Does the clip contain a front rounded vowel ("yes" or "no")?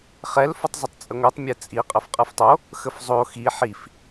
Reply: no